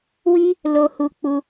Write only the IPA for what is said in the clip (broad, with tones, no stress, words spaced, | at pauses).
wi˦ | lo˧hu˧ k͡pu˦